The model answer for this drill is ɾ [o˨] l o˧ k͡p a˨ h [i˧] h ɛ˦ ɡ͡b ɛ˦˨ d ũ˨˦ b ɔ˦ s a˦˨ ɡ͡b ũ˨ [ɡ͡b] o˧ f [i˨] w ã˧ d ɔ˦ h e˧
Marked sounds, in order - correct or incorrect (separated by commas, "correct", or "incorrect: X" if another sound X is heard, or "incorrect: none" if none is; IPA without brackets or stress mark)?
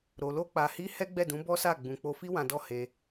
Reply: correct, correct, incorrect: k͡p, incorrect: i˦